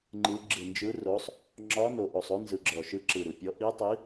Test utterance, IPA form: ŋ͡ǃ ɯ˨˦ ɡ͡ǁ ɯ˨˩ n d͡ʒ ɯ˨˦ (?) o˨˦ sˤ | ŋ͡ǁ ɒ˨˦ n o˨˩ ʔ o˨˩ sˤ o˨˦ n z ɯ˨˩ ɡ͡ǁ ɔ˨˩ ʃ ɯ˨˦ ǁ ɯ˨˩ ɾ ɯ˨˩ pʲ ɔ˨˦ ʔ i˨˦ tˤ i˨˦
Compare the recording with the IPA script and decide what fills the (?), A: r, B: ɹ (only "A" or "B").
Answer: A